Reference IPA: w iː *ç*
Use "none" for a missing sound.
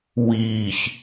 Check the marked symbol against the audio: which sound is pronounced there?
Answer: ç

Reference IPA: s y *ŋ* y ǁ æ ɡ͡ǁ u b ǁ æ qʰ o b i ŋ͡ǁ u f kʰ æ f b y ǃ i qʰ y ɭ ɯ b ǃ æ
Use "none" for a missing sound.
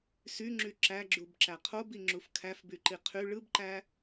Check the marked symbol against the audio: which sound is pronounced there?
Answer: ŋ͡ǁ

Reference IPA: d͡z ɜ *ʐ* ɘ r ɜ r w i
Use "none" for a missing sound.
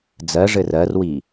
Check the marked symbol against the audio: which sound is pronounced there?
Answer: ʐ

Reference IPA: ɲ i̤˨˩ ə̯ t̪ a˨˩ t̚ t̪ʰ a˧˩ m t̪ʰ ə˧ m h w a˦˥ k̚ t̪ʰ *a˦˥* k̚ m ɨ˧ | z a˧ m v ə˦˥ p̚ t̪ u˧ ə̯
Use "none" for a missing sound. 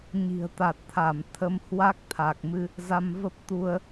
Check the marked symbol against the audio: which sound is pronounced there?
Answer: a˨˩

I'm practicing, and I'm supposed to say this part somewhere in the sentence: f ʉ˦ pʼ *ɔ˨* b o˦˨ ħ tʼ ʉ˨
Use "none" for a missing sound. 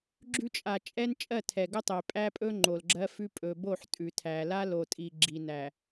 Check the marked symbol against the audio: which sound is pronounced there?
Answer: ɵ˨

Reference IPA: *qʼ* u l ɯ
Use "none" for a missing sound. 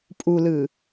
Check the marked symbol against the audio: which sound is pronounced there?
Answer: pʼ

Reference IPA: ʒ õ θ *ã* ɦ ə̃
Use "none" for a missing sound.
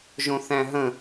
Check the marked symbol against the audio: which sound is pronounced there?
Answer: æ̃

